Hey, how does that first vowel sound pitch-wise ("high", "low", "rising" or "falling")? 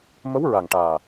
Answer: rising